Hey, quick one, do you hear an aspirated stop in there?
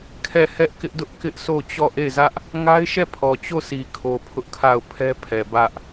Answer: yes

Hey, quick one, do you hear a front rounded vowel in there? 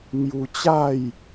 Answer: no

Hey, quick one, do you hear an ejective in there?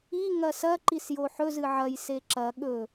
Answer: no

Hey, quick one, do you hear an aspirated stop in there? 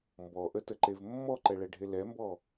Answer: no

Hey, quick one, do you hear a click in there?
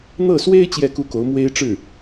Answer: no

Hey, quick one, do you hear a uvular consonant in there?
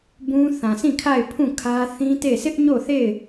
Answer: no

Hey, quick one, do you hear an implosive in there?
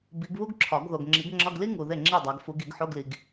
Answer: no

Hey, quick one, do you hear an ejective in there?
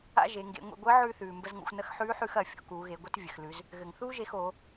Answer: no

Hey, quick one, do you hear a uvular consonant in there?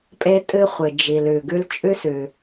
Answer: yes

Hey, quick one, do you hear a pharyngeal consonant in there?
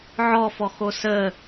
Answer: yes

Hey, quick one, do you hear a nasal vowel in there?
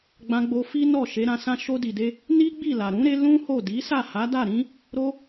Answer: yes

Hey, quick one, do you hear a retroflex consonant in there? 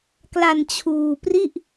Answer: no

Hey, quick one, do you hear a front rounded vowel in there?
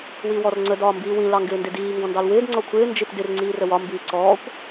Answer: no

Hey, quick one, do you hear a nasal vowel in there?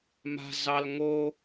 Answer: no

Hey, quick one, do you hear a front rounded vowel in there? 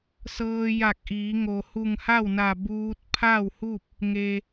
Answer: no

